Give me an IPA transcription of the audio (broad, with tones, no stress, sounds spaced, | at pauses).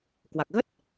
k w a˨˩ k̚ ɣ ə˦˥ t̚